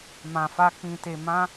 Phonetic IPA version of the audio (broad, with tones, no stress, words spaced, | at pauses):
mã˧fa˦ k͡pĩ˧te˧ mã˦